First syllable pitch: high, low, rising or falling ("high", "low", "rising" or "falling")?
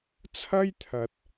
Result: high